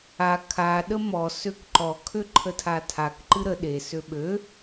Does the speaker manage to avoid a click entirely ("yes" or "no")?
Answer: no